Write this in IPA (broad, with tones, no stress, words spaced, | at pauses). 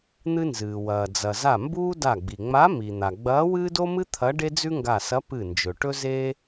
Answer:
n̪ɨ˥nzɨː˩ wɐː˩d͡zɐ˩za˧˩ mbuː˥ da˧˩ɡ͡bi˩ŋ͡ma˧˥ mi˩n̪a˩ɡ͡bɐː˧˥ wɨː˥do˥mɨ˥ t̪ʰɐ˧˥ ɖe˥d͡zʉ˥ŋɡa˧˩sɐ˧˥ pɨ˧˩nd͡ʒɵ˩ ʈɵ˥zeː˥